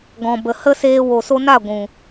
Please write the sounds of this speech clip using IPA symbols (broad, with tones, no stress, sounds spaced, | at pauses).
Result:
ɡ ɔ̃˨ b ə˨ h ə˦ s eː˧ w o˨ s o˧ n a˦˨ ɡʷ ũ˨